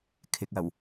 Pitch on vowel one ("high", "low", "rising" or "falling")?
low